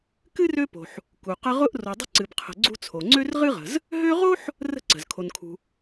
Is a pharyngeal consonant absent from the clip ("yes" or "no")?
no